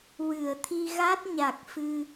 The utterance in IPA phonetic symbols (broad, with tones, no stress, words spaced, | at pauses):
wɨ˨˩˨ə̯t̪ʰi˧ɣa˦˥t̚ ɲa˨˩k̚fɨ˧